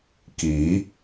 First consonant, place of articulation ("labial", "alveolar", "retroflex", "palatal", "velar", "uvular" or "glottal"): velar